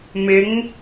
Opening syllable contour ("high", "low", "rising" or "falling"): rising